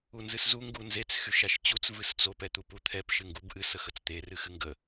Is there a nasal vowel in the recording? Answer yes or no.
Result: no